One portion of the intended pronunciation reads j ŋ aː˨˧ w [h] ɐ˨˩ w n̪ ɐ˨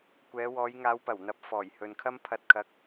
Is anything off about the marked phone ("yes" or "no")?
yes